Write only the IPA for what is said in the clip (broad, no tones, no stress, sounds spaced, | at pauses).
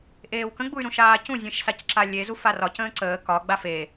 ʔ eː w k ə̃ ɡ͡b u y̯ ɾ ũ ʃ aː c ũ zʲ ẽ ʃ s a c ǁ a lʲ e z u f a r ɒ c ə̃ː ǀ əː k ɒ ɡ͡b a f e